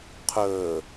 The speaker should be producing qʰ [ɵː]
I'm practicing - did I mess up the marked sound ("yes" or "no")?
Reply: no